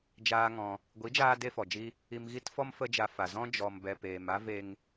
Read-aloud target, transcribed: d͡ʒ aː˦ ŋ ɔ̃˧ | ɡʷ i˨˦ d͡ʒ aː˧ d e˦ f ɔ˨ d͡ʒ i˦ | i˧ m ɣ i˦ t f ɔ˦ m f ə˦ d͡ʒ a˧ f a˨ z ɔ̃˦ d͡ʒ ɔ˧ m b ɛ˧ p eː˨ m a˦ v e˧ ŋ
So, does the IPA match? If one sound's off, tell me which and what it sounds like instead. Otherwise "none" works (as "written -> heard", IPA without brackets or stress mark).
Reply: none